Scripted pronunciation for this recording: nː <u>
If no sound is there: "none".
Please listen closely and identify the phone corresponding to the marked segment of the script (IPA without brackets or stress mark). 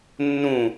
ũ